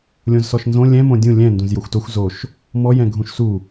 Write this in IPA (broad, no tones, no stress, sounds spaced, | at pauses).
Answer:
lʲ õ z s ɔ ʃ n z õ lʲ ɛ̃ m õ dʲ ũ lʲ ɛ̃ n d ũ z j o xʷ t o xʷ z o ʃ | m ɔ j ɛ̃ ɡʱ ũ ʃ s u